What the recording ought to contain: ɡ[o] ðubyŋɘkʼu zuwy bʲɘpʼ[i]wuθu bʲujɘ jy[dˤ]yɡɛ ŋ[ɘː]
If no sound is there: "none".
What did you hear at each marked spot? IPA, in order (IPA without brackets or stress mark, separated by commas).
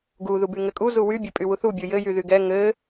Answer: u, y, ð, ɘ